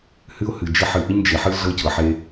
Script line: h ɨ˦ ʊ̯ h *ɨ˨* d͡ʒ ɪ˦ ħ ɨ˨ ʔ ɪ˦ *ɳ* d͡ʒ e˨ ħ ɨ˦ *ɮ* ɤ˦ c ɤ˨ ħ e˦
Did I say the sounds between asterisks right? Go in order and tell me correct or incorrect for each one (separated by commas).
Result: correct, incorrect, correct